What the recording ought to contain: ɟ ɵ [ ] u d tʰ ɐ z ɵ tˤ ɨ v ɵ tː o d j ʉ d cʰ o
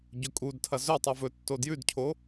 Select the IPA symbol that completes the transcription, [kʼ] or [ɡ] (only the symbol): kʼ